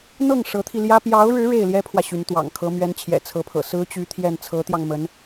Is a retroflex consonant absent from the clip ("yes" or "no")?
no